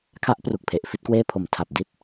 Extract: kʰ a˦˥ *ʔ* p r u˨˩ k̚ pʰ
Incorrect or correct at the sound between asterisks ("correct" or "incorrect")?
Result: correct